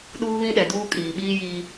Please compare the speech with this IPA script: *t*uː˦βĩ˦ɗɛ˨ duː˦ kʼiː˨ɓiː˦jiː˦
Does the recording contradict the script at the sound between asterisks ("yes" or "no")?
yes